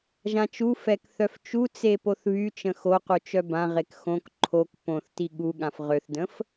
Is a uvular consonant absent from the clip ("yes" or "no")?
no